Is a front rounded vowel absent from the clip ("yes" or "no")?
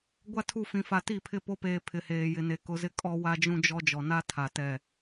yes